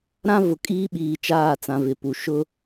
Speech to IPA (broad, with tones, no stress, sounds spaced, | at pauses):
ɾ ã˦ v ʊ˨ kʼ iː˦ ɓ iː˨ t͡ʃ aː˦˨ t͡s ã˨ v ɪ˨ p u˨ ʃ ʊ˦